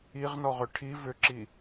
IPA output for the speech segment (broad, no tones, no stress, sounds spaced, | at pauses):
i ʁ n ɔ ʁ ʏ ʈʰ i v ʏ ǁ i